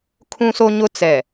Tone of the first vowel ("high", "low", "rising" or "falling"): high